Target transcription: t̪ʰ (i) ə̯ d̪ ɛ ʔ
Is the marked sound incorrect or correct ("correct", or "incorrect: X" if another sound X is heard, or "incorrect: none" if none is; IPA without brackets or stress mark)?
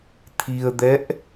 correct